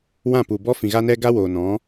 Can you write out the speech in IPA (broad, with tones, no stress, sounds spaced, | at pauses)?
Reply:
w ã˦˨ p u˨ b ɔ˦ f ĩ˨ ɣ a˦ n ɛ˦ ɡ a˦ w oː˨ n ɔ̃˨˦